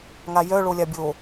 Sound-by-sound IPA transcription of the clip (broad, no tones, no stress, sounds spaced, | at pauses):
ŋ a j œ ɭ o lʲ a bʲ o